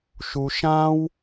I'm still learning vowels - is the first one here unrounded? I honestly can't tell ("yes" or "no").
no